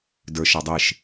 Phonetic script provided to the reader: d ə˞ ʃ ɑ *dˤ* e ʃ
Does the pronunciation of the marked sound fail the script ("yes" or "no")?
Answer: no